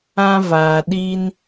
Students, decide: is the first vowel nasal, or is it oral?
nasal